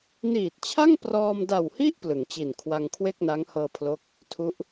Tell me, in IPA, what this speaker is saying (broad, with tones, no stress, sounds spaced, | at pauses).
n iː˨˩ t̚ t͡ɕʰ a˥˩ ŋ p r ɔː˧ m d a˨˩ w h i˥˩ ʔ p l ɯ˩˦ ŋ t͡ɕ i˨˩ n kʰ w a˧ ŋ kʰ w e˥˩ k̚ n a˦˥ ŋ h ɤː˧ pʰ l o˦˥ k̚ | tʰ u˦˥ ʔ